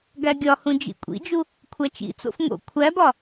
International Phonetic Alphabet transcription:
ɡæɡʲɒhũ d͡ʒḭkʷʼḭd͡ʒu | kʷʰæt͡ʃḭt͡so̰f ŋo̰ kʷʰæbɒ

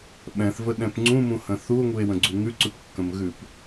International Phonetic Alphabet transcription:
ɓɛ̃θvəɗɛ̃p ŋ͡ǀũmũhə̃ θuo̯ŋue̯wə̃ɡ͡ǀu ŋʉǀʉpkːə̃mɣʉp

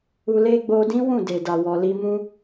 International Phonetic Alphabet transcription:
u˧le˦ ɡ͡bo˧dĩ˦ wũ˦˨de˨da˨ wɔ˨li˧mũ˦

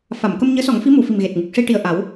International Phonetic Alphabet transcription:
fa˨˩˨mkə˧m ɲəː˧˥sɔ˨˩˦ŋfi˧˥mu˨˩˨ fi˨˩mɣe˨˩t̚ŋɨ˨˩k̚ ʂi˧ʈi˨˩ə̯ ʔa˨˩˦w

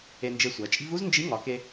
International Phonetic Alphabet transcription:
e˧nd͡ʒe˧sʷæ˩˧t͡ʃʼi̤˥v u˥znd͡ʒi˧˥ŋɒ˩˧ke˧

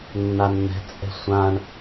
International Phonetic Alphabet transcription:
nːanːɛ̤ t͡sʼɛ̤sʷãɳ

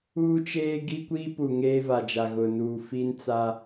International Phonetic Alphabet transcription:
uː˦t͡ʃeː˦ɡi˦kʷiː˦ pu˨ŋeː˦va˨d͡ʒa˨ ɣʊ˨nuː˨ fi˦nt͡sa˦

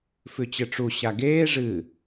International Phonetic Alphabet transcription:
fʉt͡ɕɨʈ͡ʂu ɕaɡeː ʐɨ

